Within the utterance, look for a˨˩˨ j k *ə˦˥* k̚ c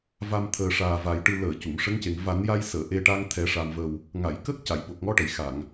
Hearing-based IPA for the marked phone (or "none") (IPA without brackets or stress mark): ə˦˥